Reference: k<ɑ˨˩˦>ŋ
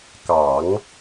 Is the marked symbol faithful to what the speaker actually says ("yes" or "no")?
yes